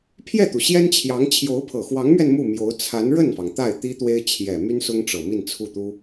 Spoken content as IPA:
pʰ j ɛ˥˩ t̪ u˩ ɕ j ɛ˥ n t͡ɕʰ j ɑ˧˥ ŋ t͡ɕʰ j o˧˥ ʊ̯ pʰ ɤ˨˩ x w ɑ˧˥ ŋ m ɥ ɛ˧ n m u˥˩ m j o˧˥ ʊ̯ t͡sʰ a˧˥ n ɻ ə˥˩ n f ɑ˩ ŋ t̪ a˥˩ ɪ̯ t̪ i˥ t̪ w e˥ ɪ̯ t͡ɕʰ j ɛ˨˩ m y˥ n s ʊ˥ ŋ ʈ͡ʂ ɤ˨˩ m i˥˧ n t͡sʰ u˥˩ t̪ u˥

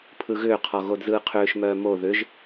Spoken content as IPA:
pʰ ɯ ɣ ʏː qʰ ɔ ɣ o d z ɯː qʰ ʏː ʃ m œː m o ð ʏ ʒ

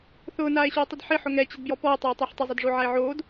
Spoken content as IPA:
θ ʊː n aː e̯ ɕ u e̯ tˤ ɪ d ħ ɪ ħ ʊ ŋ ɛ t͡ɕ ɪ d b j ɔ p ɔ e̯ tˤ e o̯ tˤ ɛ ħ tˤ ɪ zˤ e d ʐ o ʕ a e̯ ʕ oː d

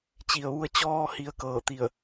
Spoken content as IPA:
t͡ɕ i˩ ə̯ ʋ u˧ ə̯ t͡ɕ ɔː˧ h i˩˧ ə̯ k ɤː˧˩ t̪ i˧˩ ə̯

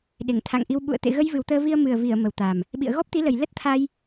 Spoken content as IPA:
ɗ e˧˩ ŋ t̪ʰ a̰˧˨ ŋ ʔ i˧ w ɓ ṵ˧˨ ə̯ t̪ ḛ˧˨ ɣ ə˧ j v ɨ˨˩ w t̪ əː˧ v i˧ ə̯ m ɨ˨˩ ə̯ v i˧˩ ə̯ m ə˨˩ w t̪ a˨˩ m | ɓ ḭ˧˨ ə̯ ɣ ɔ˦˥ p̚ t̪ i˨˦ l ə˨˩ j l ə˦˥ t̚ t̪ʰ a˧ j

